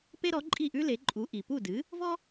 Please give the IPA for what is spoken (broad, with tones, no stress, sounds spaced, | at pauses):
p e˥ ɾ ɔ˩˥ ǃʼ i˥˩ ʔ ʉ˥ l e˩˥ ǃʼ u˩˥ ʔ i˩ p u˥˩ d ɨ˩˥ | v ɔ˥